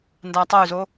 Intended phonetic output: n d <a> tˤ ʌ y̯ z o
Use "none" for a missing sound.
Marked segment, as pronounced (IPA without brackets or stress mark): a